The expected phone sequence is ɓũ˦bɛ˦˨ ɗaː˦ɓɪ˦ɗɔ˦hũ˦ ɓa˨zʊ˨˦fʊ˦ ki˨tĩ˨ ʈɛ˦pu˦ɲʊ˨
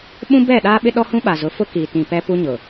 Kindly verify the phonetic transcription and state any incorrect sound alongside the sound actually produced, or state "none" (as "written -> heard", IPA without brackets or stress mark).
ʈ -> p